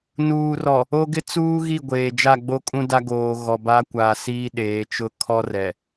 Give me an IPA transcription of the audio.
n uː˨ r ɔ˨ | o˦ ɡ ɪ˦ t͡s uː˦ ɣ i˦˨ ɡʷ eː˨ d͡ʒ a˦˨ ɡ͡b o˦ kʼ ũ˦ d a˦ ɡ oː˨ ɣ ɔ˨ b a˦ kʷ aː˨ s iː˦ ɗ eː˨˦ t͡ʃ ʊ˦ kʰ ɔ˦ r ɛ˨

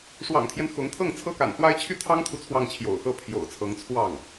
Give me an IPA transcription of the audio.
ʂ w ɑ̰˨˩ ŋ t̪ʰ j ɛ˦ n x ʊ˧˥ ŋ t̪ʰ ɤ˥˩ ŋ t͡sʰ ɤ˥ k a̰˨˩ n x w a˥ ɪ̯ t͡ɕʰ y˥ t̪ʰ ɑ˥ ŋ t̪ʰ u˨ t͡sʰ w ɑ˥˩ ŋ t͡ɕʰ j o̰˨˩ ʊ̯ x ɤ˥ pʰ j o̰˨˩ ʊ̯ t͡sʰ ɤ˧˥ ŋ t͡sʰ w ɑ˥˩ ŋ

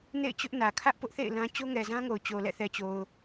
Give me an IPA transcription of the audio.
n ḛ˦˨ ɪ̯ t͡ɕ ʊ˦ ʔ n ä˨ kʰ ä˦ ʔ p ʊ˦ ʔ θ ḛ˦˨ ɪ̯ l ã˦ t͡ɕ o˦ ŋ ɛ˨ z ã˦ ŋ o˨ ʊ̯ t͡ɕ o˨ l ɛ̰˦˨ θ ɛ˨ t͡ɕ o˨ ʊ̯

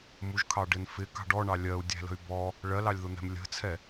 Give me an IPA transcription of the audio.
m u ʒ kʰ ɑ ɖ ɪ n f ɪ k ɑ̤ ɖ ɔ ɳ ɑ lʲ ɜ u̯ dʲ æ̤ l ə̤ y̯ b ɔ | ɭ ɜ l ɑ lʲ ð ʊ n̪ ɛ̤ m lʲ ə̤ t͡sʰ ɛ

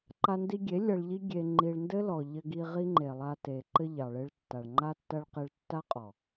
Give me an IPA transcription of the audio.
ǃ a˧ n d i˧ ɡʲ e˨˦ lʲ ɐ˧ ɭ ʎ i˦ ɡʲ e˧ ŋ͡ǃ i˧ ɭ n d ɘ˦ l ɔ˨ ʎ ɘ˧ ɡ i˧ ʁ i˦ ŋ͡ǃ e˨ lˠ a˧ t e˨ ǃ ɘ˧ ʎ ɑ˨ ɭ e˧ ɭ tː a˨ ɭ ŋ͡ǃ a˧ tː ɐ˧ ɭ q e˧ ɭ tː a˦ qʼ ɔ˨

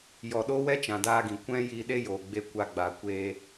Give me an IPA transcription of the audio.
j ɔ˨ ɗ o˦ w ɛ˦ t͡ʃ ã˨ d aː˧ ɡ ĩ˨ kʷ ɛ̃˦ j i˧ ɗ e˦ j oː˨ ɡ͡b e˧ kʷ a˧ ɡ͡b aː˨ kʷ eː˧

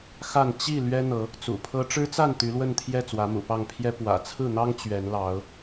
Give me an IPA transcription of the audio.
x a˥˨ n t͡ɕ i˥˨ l ɥ ɛ˦ n̪ ɤ˨˦ | t͡s ṵ˨˩ pʰ ɤ˦ ʈ͡ʂ ɻ̩˦ t͡s a˥˨ n t̪ y˨˦ l w ə˥˨ n t̪ʰ j ɛ˥˨ t͡s w ä˨˦ m ṵ˨˩ p ɑ˥˨ ŋ pʰ j ɛ˦ p w ä̰˨˩ t͡sʰ ɹ̩˥˨ n̪ ɑ˦ ŋ t͡ɕ ɥ ɛ˨˦ n l ɑ˨˦ ʊ̯

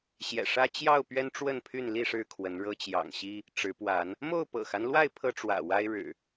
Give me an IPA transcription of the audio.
ɕ j ɛ̰˨˩ ʂ ä˦ t͡ɕ j ɑ˥˨ ʊ̯ p ɥ ɛ˦ n ʈ͡ʂ w ə˥˨ n pʰ y˥˨ n l i˥˨ ʂ ɻ̩˦ kʰ w ə˨˦ n ɻ ɤ˦ t͡ɕ j ɑ̰˨˩ ŋ ɕ i˦ | ʈ͡ʂ ɻ̩˨˦ p w a˨˦ n | m o˥˨ ʊ̯ p ɤ̰˨˩ x a˦ n l w a˥˨ ɪ̯ pʰ ɤ˦ ʈ͡ʂ w ä̰˨˩ w a˦ ɪ̯ ɻ ɻ̩˨˩

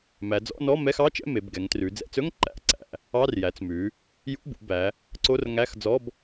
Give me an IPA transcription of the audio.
m æ˩˧ d͡z ɔ̰˧˥˧ n ɔ˧˥˧ m ɛ˧˥˧ x ɑ˧˥˧ t͡ʃ ɛ̰˧˥˧ m e˩˧ b ɡ ɛ˩˧ ŋ t r ʉ˩˧ d͡z ɛ̰˩˧ t͡s ɵ˧˥˧ ŋ ǃ æ̰˧˥˧ ǀ æ̰˩˧ | ɑ˧˥˧ r j æ˩˧ t͡s m ʉ˩˧ | j ṵ˧˥˧ b ṵ˩˧ b æ˩˧ | ǀ o˧˥˧ r ŋ æ˧˥˧ x d͡z ɔ˧˥˧ b

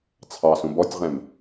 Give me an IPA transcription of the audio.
t͡sʰ ɑ s ũ b ɔ tʲ ʁ ɛ̃ m

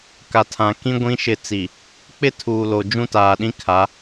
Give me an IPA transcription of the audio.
k a˨ tʰ ã˨ k ĩ˦ ɡʷ ĩ˦ ʃ ɪ˦˨ t͡s i˨ | k͡p ɪ˦ tʰ uː˨ l o˨ d͡ʒ ũ˦ t aː˨ ɗ ĩ˦ kʰ a˨˦

